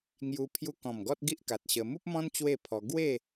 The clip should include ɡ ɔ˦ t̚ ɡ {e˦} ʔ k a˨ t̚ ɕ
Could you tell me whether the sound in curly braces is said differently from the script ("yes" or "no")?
yes